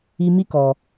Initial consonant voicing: voiced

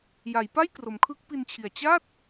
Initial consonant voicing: voiced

